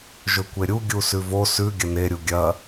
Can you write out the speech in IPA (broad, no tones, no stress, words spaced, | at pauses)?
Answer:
ʒɵkʷeɾʲu ɡʲusʉvo sʉ ɡʲɐne ɾʲuɡʲɐ